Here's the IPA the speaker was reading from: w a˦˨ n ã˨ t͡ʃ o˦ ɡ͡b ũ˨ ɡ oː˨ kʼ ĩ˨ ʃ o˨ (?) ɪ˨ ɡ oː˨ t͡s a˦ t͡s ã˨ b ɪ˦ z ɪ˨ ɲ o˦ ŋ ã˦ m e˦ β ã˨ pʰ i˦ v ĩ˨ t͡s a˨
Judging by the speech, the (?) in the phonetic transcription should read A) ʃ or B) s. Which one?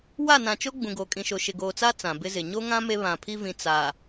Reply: A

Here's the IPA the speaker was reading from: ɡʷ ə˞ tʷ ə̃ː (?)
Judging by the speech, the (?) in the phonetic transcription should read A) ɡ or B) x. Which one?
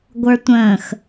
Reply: B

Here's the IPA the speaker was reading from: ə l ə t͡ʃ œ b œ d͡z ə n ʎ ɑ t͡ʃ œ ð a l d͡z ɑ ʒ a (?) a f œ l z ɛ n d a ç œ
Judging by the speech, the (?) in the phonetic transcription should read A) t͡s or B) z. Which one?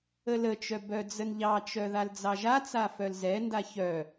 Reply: A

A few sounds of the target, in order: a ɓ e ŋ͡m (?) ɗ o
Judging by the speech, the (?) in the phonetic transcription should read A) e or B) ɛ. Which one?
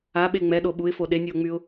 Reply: B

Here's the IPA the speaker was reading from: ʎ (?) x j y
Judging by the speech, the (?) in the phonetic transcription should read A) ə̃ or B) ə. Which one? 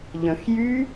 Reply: A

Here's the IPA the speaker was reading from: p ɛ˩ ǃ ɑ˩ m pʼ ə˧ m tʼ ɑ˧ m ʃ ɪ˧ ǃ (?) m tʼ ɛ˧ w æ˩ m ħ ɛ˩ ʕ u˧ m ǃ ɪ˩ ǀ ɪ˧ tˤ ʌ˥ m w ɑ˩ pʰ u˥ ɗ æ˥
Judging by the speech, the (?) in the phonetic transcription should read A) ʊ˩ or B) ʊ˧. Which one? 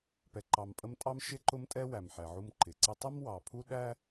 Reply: B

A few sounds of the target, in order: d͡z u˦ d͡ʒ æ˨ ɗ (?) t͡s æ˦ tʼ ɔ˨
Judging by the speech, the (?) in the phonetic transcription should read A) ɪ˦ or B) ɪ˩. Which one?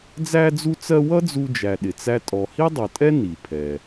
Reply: B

